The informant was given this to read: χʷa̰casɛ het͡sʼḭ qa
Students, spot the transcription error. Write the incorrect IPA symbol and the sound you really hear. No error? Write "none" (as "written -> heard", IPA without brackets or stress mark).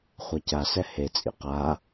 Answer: a̰ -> a